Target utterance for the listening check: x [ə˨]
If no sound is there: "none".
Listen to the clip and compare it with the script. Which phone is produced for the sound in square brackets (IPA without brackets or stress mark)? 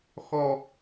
ɔ˨